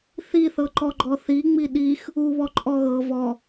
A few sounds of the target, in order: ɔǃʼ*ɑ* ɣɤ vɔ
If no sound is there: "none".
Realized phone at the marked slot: ɔ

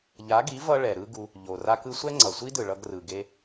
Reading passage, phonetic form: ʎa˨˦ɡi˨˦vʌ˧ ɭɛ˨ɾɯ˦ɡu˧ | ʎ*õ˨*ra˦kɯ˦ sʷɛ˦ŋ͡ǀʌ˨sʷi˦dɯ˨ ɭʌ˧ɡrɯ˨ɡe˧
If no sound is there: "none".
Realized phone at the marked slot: o˨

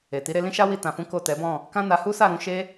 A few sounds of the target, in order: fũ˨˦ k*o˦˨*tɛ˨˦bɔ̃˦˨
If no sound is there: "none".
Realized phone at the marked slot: o˦˨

